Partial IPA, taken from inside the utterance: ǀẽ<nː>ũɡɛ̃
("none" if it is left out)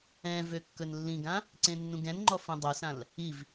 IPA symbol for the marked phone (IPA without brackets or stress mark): nː